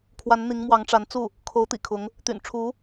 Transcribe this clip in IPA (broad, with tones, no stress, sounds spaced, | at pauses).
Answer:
kʰ w a˧˥ n n̪ i˧˥ ŋ m w ɑ˧˥ ŋ ʈ͡ʂ a˧˥ n t͡s u˥˩ | kʰ o˧˥ ʊ̯ t̪ ḭ˨˩ kʰ ʊ˧˥ ŋ | t̪ y̰˨˩ n ʈ͡ʂʰ u˧˥